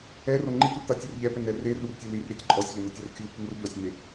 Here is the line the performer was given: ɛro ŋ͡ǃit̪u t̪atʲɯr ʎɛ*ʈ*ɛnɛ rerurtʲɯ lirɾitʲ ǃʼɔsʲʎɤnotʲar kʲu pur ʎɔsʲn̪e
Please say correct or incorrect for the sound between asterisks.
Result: incorrect